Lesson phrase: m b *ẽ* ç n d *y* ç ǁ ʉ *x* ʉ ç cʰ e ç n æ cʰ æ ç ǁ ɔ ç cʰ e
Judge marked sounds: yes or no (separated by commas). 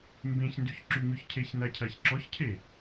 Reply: yes, yes, no